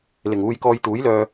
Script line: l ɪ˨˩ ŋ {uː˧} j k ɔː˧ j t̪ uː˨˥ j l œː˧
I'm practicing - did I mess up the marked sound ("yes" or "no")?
no